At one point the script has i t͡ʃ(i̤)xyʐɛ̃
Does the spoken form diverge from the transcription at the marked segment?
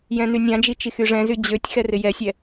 yes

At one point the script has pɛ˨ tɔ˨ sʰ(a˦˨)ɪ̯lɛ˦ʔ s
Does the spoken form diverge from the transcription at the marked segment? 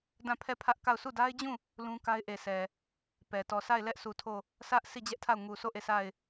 no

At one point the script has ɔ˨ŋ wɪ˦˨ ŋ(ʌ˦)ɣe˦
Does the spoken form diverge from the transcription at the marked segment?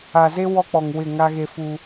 yes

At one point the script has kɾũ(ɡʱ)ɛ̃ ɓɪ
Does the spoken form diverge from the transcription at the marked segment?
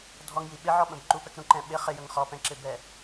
yes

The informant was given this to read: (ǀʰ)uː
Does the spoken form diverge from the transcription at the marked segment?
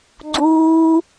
yes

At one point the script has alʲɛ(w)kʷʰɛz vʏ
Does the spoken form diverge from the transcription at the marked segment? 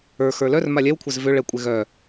no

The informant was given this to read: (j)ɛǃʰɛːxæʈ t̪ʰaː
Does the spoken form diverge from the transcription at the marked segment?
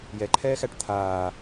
no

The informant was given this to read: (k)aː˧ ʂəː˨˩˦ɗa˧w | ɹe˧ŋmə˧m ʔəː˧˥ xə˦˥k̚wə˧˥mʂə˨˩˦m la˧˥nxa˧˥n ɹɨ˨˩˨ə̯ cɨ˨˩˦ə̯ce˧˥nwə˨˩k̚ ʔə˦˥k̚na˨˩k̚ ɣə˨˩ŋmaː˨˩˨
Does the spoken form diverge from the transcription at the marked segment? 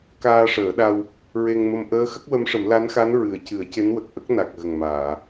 no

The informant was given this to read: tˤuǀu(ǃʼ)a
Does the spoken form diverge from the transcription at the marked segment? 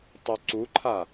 yes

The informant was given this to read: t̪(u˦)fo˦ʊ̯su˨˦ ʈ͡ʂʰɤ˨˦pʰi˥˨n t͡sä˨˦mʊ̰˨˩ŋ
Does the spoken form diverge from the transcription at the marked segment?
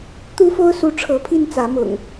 no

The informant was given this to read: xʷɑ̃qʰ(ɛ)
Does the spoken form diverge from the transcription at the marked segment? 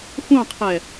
no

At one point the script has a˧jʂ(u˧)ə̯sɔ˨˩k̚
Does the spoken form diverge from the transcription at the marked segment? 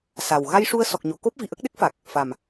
no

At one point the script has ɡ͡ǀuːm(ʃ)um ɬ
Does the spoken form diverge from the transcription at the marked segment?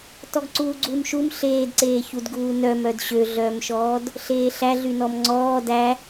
no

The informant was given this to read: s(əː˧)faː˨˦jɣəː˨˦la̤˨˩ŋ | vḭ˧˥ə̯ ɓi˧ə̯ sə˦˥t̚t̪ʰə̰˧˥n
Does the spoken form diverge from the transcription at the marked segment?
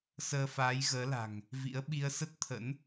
no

